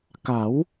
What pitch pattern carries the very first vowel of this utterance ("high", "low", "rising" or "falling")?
rising